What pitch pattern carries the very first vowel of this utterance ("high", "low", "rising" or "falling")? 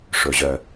low